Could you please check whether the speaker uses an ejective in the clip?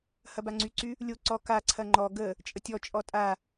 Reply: yes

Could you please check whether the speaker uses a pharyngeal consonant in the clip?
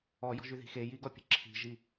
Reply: no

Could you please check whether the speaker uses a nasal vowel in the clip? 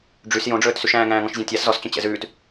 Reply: yes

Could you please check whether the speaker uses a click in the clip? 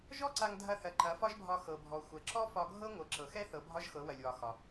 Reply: yes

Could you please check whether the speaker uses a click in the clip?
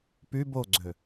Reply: yes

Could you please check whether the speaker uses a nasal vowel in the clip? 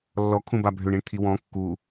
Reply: yes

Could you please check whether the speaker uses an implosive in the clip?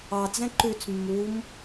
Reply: no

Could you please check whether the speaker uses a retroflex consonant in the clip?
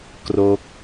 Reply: no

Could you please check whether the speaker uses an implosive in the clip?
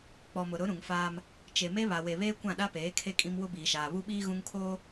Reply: yes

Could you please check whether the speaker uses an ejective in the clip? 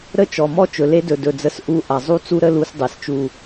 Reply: no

